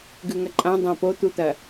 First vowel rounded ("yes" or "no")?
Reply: yes